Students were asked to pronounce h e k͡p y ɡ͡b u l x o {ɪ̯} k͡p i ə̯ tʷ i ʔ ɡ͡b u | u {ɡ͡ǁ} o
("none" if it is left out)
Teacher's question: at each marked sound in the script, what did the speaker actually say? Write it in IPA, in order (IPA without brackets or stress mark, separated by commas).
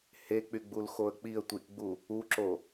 ə̯, ǁ